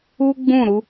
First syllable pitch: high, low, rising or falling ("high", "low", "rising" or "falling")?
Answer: high